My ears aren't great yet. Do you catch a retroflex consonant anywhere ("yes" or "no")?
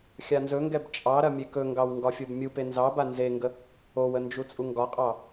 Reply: no